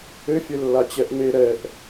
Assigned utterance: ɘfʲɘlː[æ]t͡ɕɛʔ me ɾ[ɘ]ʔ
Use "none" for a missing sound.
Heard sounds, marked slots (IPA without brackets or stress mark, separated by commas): a, ɛ